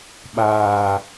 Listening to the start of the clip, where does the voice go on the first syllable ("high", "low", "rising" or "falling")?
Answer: low